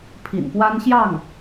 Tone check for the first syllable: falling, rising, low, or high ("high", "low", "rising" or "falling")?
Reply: low